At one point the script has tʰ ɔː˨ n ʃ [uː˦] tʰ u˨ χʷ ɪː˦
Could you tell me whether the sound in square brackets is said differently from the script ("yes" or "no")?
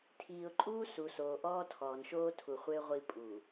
yes